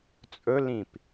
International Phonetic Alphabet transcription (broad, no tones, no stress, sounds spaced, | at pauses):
t͡sʼ ɵ l ĩ p